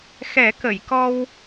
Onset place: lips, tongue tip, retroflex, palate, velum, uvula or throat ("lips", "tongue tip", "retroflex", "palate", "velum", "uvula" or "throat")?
velum